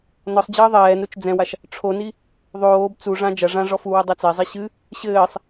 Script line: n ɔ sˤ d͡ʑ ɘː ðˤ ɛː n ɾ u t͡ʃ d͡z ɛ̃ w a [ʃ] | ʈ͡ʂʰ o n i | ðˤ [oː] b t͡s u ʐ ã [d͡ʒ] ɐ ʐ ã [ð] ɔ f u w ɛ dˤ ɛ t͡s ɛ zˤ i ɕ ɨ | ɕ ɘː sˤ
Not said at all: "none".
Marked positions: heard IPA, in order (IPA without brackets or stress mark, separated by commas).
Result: ʃ, oː, d͡ʒ, ʐ